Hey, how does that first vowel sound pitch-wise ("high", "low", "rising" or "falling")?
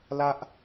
high